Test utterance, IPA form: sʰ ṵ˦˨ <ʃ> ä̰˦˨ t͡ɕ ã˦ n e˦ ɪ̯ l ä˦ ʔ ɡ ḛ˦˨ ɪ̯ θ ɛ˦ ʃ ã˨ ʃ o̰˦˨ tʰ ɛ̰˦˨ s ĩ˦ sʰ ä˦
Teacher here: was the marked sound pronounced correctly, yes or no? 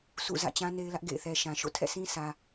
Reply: no